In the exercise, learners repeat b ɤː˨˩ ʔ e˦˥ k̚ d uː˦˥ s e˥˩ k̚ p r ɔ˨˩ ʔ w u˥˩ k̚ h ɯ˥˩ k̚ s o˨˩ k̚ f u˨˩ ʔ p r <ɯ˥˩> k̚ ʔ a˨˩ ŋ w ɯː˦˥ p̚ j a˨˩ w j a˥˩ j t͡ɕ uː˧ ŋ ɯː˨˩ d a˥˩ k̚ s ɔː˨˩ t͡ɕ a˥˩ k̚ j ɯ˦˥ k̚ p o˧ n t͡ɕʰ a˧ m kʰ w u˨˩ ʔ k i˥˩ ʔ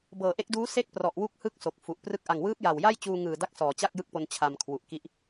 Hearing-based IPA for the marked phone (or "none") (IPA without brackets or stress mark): ɯ˥˩